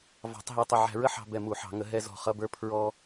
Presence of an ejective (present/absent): absent